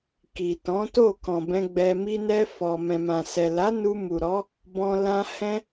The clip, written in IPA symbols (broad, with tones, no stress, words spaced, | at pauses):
ki˨tɔ̃˨˦to˦˨ kɔ̃˨bɛ̃˧ ɡ͡bɛ˧ mi˧nɛ˧ fɔ˨ mɛ̃˨mã˨sɛ˨ la˨˦ nu˧mu˨ɾɔ˨˦ | bɔ̃˧ lã˧ hɛ̃˦